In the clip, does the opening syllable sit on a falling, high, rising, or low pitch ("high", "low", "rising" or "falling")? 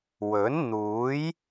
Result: rising